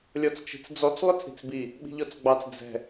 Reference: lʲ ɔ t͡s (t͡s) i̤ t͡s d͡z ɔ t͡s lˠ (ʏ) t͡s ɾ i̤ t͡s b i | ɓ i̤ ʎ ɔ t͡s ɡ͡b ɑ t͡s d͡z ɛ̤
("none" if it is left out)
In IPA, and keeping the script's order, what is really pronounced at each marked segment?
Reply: t͡ʃ, ʏ

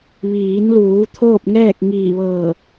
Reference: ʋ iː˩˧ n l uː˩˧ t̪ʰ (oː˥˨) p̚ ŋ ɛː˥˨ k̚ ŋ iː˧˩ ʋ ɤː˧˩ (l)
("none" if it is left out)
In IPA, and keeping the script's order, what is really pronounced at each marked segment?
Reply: oː˥˨, none

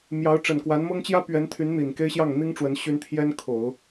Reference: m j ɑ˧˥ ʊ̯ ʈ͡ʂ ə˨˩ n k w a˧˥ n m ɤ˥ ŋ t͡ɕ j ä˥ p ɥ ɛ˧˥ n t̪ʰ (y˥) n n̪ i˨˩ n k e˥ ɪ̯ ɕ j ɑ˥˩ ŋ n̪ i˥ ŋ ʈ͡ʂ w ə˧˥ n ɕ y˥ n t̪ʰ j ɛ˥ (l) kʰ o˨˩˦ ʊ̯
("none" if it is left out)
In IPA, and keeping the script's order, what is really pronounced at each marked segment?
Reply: y˧˥, n

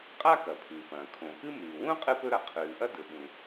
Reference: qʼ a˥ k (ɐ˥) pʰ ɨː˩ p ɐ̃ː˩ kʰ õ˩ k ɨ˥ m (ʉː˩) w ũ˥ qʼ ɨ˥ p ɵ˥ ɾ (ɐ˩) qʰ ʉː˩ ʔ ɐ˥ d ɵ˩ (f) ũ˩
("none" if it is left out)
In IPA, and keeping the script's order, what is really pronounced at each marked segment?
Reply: ɐ˩, ʉː˩, ɐ˩, ɓ

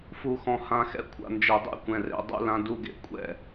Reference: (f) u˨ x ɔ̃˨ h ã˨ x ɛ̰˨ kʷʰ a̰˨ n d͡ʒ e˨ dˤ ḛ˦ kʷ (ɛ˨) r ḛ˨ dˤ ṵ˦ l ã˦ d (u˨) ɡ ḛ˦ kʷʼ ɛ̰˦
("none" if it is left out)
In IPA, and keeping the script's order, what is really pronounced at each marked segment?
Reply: f, ɛ̃˨, u˦

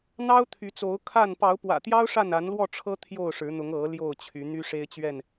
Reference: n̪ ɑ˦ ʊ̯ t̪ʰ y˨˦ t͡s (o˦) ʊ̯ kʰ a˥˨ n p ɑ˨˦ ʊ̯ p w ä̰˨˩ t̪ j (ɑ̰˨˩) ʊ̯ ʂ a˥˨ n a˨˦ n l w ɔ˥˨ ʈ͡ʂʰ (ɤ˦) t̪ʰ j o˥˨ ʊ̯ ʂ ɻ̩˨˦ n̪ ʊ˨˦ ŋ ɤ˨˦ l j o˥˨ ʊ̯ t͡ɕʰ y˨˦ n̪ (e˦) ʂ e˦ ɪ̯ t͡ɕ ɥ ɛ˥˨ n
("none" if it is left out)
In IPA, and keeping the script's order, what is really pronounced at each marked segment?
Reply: o˨˦, ɑ˦, ɤ˦, y˦

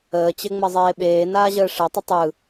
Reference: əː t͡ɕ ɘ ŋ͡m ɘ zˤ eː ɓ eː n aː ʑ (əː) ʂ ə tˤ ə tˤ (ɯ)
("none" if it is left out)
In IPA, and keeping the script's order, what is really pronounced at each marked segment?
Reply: əː, ɯ

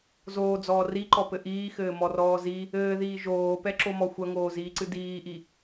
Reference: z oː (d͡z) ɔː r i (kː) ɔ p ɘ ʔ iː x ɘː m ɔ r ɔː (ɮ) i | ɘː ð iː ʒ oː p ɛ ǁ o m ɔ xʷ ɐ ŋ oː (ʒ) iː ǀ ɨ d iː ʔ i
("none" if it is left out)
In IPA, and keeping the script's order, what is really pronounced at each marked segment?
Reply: d͡z, ǃ, z, z

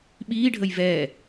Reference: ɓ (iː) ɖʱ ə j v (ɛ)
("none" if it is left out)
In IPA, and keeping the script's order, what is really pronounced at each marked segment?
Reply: iː, ɛ

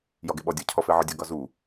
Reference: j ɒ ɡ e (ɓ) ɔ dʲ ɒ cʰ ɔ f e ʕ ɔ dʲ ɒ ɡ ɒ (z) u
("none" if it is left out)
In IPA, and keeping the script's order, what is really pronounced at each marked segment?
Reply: ɓ, z

